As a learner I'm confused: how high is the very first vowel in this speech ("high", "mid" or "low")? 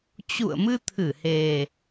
high